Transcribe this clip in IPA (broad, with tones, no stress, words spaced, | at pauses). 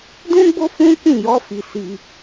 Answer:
dũ˦ɡ͡bo˦fũ˦ kĩ˦˨jɔ˨˦ fi˧si˧